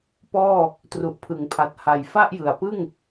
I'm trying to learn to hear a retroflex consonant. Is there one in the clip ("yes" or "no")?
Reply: no